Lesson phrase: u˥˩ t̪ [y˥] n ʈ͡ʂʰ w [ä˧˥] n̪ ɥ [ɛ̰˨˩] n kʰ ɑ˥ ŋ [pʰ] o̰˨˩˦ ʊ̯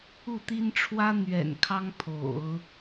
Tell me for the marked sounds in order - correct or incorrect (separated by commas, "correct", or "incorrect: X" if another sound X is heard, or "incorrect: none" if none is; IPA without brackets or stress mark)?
incorrect: i˥, incorrect: ä˥, correct, correct